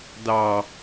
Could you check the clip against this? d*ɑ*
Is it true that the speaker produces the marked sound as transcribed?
yes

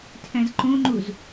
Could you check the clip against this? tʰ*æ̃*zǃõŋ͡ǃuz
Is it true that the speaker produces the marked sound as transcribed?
yes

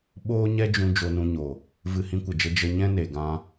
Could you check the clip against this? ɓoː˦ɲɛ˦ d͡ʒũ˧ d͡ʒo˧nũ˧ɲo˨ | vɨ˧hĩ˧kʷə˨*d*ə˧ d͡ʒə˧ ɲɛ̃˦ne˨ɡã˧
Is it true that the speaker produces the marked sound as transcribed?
no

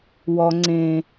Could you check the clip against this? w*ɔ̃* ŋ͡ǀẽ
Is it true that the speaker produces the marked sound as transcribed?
no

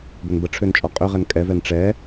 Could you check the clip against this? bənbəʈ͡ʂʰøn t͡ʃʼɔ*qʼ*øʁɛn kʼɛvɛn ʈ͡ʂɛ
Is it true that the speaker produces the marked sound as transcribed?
yes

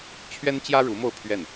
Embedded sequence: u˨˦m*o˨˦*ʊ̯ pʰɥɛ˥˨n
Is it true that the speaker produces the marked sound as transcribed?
no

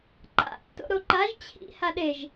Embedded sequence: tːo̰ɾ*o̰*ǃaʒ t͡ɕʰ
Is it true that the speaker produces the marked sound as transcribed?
no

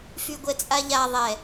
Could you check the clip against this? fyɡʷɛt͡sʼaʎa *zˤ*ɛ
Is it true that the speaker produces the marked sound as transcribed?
no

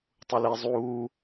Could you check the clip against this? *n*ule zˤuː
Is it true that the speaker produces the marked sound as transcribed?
no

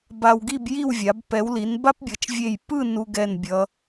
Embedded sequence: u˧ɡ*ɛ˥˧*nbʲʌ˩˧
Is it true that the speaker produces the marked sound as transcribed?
no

